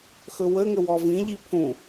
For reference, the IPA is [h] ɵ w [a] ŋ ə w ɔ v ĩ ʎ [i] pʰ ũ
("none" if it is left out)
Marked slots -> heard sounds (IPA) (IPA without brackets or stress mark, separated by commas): x, ə, i